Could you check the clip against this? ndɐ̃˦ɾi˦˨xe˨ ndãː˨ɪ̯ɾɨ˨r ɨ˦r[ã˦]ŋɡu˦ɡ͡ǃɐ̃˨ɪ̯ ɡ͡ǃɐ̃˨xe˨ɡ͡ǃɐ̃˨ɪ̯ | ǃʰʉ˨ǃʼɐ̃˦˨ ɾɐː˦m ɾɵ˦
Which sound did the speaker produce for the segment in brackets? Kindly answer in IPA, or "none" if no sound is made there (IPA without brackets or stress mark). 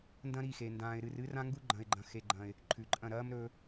ã˦